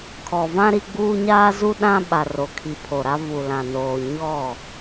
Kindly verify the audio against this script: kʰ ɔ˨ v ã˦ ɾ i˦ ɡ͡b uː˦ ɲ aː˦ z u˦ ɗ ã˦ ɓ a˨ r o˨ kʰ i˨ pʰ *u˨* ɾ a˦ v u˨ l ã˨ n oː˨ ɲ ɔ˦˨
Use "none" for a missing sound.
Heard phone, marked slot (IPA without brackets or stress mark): o˨